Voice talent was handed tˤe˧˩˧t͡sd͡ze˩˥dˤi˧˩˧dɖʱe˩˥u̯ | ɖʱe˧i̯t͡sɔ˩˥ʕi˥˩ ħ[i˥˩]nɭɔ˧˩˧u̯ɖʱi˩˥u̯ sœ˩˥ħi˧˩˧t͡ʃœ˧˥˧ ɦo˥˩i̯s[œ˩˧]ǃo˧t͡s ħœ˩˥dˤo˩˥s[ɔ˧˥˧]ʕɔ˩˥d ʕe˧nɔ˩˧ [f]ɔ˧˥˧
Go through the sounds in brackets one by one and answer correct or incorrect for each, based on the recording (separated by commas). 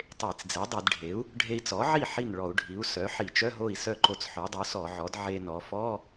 correct, incorrect, incorrect, correct